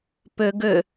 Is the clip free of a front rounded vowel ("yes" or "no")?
no